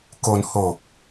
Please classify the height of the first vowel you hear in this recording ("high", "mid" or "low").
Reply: mid